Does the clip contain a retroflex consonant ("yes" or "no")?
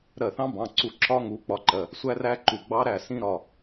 no